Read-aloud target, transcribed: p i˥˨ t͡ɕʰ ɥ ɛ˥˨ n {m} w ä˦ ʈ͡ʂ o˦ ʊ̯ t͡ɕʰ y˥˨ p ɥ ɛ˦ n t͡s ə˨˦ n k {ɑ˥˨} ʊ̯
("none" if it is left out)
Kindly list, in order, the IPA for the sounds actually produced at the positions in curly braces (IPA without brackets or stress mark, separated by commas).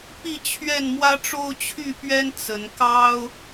m, ɑ˦